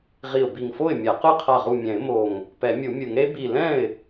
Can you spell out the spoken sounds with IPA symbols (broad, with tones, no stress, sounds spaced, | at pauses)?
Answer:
ʁ i˧˩ ʊ̯ b i˧˩ ŋ f o˥˩ ɪ̯ mʲ a˨˩˦ q ɯ˥˩ qʰ a˧˩ ʁ u˧˩ mʲ ɛ̃˨˩˦ ɪ̯ m o˧˩ ŋ | p ɛ˨˩˦ mʲ u˨˩˦ mʲ ɯ˨˩˦ ŋ ɾ e˧˥ b i˧˩ l ɛ̃˥˩ ɪ̯